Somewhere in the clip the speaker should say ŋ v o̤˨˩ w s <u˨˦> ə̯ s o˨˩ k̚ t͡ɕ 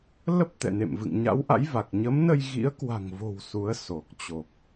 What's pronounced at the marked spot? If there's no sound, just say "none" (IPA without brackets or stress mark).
u˨˦